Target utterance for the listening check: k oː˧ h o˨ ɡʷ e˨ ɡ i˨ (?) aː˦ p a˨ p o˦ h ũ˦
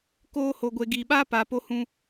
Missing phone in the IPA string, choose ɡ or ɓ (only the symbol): ɓ